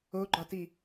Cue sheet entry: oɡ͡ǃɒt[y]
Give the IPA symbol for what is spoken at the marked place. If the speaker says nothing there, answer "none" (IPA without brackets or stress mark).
i